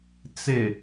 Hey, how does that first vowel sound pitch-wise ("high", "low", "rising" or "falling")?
low